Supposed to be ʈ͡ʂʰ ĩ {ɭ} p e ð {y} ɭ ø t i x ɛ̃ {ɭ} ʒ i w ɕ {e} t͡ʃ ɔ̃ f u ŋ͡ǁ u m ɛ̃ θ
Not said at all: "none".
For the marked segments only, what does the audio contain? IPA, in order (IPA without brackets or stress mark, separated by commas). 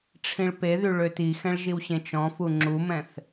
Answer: ɭ, y, ɭ, ẽ